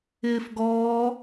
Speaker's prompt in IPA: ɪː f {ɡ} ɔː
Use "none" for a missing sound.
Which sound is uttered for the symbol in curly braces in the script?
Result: ɡ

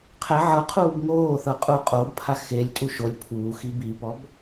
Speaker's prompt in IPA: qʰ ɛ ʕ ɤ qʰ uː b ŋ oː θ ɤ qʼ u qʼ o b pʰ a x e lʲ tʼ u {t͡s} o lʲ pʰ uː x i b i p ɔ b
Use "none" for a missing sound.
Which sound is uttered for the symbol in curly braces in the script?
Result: ʃ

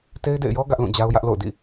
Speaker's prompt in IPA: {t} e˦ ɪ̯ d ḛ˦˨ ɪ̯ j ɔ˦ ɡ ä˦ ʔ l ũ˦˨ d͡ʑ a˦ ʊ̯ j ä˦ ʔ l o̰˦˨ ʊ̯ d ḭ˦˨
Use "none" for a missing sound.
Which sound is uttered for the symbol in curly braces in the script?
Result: t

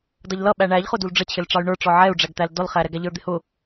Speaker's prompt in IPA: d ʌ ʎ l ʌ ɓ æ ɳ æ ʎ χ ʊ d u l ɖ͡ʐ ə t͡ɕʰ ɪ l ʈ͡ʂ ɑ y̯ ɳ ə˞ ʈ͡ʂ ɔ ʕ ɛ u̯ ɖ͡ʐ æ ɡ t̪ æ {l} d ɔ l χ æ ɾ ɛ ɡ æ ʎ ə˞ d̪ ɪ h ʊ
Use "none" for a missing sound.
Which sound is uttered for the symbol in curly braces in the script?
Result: l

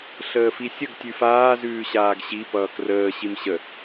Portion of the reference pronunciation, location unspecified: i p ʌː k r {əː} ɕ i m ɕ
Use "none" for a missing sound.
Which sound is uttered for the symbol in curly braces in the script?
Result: əː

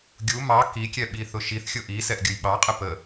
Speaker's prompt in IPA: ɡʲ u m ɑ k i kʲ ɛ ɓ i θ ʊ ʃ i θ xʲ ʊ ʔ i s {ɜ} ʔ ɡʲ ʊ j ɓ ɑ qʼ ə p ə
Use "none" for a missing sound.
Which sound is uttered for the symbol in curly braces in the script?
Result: ɛ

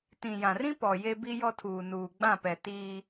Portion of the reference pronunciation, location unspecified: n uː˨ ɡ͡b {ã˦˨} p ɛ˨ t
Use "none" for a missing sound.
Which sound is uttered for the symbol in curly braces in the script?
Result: ã˦˨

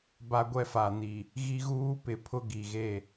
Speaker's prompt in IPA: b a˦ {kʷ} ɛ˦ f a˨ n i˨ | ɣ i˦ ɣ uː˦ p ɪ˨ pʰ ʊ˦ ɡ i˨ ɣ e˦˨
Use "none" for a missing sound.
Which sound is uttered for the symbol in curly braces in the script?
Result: ɡʷ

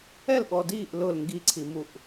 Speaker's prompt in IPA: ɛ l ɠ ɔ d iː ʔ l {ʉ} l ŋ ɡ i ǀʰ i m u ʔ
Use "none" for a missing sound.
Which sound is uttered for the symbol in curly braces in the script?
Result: ʊ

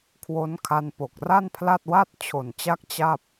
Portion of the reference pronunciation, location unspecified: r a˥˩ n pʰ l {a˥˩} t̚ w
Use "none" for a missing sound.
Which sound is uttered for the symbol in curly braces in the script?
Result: a˥˩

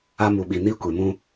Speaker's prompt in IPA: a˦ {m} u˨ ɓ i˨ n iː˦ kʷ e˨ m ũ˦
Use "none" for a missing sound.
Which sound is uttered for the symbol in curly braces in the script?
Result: m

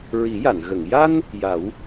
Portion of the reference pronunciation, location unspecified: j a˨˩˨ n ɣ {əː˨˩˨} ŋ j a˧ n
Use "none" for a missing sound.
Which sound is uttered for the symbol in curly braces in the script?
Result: ə˨˩˨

